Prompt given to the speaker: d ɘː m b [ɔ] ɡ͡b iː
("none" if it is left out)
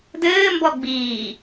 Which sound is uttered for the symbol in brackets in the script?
ɔ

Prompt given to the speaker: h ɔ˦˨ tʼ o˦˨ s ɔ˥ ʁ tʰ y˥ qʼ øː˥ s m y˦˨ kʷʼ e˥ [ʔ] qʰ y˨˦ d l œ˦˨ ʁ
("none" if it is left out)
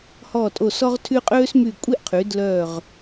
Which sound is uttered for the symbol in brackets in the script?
ʔ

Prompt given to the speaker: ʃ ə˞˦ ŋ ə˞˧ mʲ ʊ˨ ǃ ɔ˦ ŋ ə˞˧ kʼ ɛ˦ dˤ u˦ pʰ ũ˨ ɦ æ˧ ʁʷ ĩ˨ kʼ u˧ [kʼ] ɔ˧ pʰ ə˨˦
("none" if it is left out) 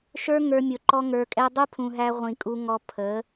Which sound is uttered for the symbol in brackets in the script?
ŋ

